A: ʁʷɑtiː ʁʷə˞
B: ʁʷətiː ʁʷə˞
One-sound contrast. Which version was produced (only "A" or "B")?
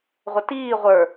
B